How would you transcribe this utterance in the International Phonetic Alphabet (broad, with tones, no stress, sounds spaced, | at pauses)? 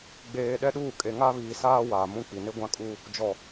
ɡ͡b eː˨ ɗ ɛ˦ ɗ uː˦˨ kʼ e˨ ŋ a˦ β iː˨ s aː˦ w aː˨ m ũ˦ k͡p i˨ n ɪ˦ ɡʷ ã˦ kʼ u˦ | d͡ʒ ɔ˨